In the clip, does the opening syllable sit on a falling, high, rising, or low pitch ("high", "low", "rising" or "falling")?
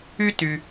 high